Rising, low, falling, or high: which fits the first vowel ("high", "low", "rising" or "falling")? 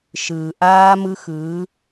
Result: low